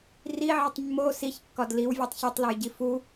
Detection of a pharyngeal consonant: present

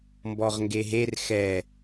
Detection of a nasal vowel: absent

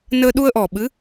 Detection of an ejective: absent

